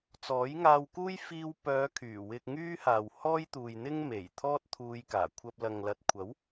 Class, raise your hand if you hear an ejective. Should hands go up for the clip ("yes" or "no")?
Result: no